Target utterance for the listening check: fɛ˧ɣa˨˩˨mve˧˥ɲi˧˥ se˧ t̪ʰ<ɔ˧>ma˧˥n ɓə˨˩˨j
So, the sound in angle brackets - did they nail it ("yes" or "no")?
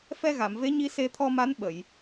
yes